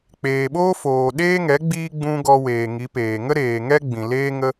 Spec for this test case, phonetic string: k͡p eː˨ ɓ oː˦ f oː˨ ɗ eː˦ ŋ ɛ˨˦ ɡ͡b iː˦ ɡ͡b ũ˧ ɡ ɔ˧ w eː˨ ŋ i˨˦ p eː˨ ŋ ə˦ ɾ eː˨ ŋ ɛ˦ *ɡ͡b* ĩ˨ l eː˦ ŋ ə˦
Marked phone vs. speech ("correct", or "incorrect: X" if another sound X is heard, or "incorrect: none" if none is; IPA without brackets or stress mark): correct